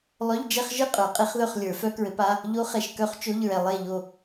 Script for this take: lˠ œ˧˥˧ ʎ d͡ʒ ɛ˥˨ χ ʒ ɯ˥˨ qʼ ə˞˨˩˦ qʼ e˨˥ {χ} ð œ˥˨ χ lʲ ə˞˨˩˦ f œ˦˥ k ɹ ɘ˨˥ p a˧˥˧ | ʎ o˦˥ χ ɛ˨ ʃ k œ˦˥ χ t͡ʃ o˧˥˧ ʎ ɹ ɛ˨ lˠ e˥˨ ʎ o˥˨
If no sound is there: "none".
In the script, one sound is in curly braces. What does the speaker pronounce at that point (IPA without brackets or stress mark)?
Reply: χ